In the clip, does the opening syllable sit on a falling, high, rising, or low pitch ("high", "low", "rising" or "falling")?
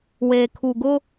low